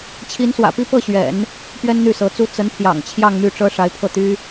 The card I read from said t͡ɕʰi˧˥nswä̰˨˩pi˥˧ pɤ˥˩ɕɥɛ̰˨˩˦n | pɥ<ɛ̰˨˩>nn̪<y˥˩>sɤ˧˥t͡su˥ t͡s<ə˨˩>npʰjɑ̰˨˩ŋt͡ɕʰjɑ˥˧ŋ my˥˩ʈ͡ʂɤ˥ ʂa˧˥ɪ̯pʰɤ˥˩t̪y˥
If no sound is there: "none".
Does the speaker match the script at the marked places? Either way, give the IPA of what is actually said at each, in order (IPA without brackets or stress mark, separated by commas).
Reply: ɛ˥, y˥˩, ə˧˥